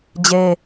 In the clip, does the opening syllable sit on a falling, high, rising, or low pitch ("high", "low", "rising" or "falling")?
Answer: high